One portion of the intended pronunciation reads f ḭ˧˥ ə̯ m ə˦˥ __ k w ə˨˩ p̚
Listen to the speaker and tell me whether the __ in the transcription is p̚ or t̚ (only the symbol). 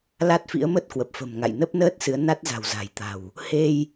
t̚